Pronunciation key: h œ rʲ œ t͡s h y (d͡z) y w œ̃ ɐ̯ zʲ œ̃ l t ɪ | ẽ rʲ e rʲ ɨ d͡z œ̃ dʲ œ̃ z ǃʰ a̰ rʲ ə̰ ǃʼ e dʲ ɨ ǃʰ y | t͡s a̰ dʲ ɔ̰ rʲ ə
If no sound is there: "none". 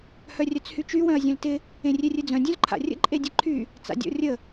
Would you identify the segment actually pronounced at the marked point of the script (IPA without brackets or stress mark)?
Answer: t͡ʃ